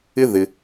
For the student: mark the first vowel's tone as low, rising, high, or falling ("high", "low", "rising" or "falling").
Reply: high